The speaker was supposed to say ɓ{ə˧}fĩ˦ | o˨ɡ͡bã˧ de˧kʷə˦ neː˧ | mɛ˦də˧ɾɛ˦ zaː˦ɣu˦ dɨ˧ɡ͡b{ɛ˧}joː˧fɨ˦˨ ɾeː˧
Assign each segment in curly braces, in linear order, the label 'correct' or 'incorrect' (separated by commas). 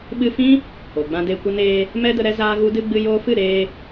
incorrect, incorrect